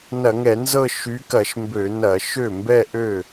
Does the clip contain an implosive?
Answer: no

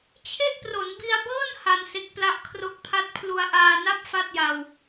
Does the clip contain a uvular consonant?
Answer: no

